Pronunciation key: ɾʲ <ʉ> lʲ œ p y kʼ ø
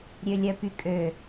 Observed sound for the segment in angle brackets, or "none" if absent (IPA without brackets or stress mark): ø